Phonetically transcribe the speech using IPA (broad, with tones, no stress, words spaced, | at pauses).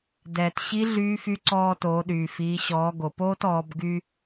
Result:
dɛː˩tɕi˧˥ ɮyː˧˥fy˧˥ǀɔː˧toː˩˧ ɗyː˩fiː˩˧ɕɔː˩˧ ɡo˩poː˥tɔː˩˧b ɡy˧